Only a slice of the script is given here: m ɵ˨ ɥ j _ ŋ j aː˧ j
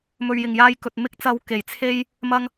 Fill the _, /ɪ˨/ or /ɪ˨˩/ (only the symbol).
ɪ˨˩